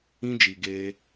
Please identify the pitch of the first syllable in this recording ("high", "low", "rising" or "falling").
high